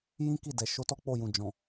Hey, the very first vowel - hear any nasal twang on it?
yes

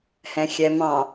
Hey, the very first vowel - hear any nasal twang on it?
yes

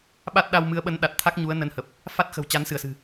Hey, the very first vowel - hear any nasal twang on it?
no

